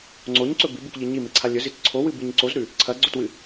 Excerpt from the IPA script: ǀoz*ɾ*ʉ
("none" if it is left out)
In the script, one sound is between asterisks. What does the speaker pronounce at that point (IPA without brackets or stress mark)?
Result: ɾ